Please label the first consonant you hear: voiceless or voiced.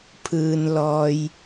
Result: voiceless